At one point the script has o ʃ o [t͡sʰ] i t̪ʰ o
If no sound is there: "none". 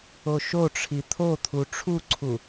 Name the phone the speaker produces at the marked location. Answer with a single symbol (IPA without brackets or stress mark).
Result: ʈ͡ʂʰ